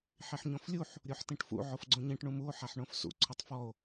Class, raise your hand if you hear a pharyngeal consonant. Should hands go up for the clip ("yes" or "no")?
yes